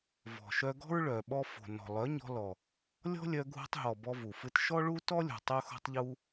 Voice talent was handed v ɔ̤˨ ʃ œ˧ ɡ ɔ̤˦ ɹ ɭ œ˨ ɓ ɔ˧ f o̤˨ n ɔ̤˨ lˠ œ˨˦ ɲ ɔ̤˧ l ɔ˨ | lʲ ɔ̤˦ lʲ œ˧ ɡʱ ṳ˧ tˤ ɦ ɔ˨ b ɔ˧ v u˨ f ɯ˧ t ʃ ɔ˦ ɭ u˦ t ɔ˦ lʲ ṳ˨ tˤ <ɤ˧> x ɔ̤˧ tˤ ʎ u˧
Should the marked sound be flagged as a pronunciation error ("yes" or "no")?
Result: yes